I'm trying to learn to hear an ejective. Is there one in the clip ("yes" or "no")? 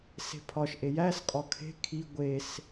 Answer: yes